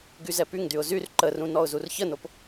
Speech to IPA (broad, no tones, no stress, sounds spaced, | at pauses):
ɡ y z ɛ p y ŋ d y ʊ̯ z y r ǃ ə r ũ n ɔ ʊ̯ z u r ç ə n o p